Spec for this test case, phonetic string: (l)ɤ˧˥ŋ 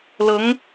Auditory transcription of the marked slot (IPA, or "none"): l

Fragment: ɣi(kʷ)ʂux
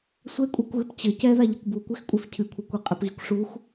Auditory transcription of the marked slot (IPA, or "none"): kʷ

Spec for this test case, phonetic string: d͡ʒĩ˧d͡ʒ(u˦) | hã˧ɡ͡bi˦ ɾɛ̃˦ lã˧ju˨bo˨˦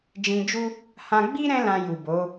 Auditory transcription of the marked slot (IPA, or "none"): u˦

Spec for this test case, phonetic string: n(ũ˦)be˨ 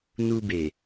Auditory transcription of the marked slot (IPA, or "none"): u˦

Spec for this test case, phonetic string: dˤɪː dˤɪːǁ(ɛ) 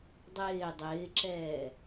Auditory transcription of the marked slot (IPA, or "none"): ɛː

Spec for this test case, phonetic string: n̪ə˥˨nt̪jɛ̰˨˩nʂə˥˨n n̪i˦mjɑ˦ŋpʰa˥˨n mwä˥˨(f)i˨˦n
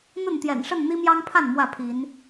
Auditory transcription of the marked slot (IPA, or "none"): pʰ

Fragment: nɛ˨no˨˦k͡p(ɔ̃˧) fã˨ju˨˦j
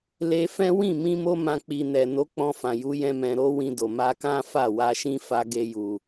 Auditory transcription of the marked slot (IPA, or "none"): ɔ̃˧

